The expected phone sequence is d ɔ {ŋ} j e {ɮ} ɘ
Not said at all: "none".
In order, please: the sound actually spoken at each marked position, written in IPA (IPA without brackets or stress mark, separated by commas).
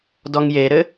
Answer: ŋ, ɾ